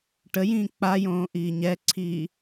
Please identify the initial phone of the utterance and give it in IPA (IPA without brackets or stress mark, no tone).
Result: ʈ